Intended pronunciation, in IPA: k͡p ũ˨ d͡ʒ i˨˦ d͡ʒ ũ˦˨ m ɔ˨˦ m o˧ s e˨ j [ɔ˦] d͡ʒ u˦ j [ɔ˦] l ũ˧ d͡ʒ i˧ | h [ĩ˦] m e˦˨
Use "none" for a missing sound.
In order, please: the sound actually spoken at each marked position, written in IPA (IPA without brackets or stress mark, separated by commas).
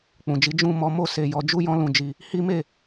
ɔ˨˦, ɔ̃˦, i˦